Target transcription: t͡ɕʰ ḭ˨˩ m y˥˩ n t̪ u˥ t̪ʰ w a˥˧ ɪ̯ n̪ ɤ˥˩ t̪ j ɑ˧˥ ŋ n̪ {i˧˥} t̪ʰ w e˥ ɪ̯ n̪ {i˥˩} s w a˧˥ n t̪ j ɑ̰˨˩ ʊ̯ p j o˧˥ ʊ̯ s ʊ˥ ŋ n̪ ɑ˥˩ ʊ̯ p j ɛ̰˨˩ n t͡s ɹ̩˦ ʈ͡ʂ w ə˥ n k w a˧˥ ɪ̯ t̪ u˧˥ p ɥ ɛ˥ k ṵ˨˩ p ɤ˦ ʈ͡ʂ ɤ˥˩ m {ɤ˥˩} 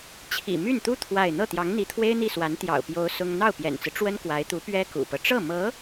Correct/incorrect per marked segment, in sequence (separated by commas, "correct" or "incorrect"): correct, correct, incorrect